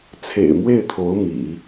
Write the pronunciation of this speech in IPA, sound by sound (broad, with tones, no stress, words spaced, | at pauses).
t͡sʰḛ˨˩ɪ̯mwe˥˩ɪ̯t̪ʰo˧˥ʊ̯ mḭ˨˩˦